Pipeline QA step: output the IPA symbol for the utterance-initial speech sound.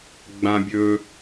ɡ͡b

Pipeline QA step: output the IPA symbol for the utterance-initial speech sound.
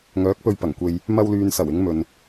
ŋ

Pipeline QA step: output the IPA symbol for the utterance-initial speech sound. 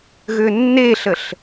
ɣ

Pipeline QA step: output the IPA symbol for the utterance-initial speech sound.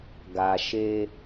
ɡ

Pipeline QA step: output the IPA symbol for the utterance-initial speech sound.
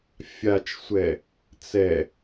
fʲ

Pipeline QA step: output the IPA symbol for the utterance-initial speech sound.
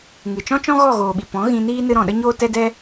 ŋ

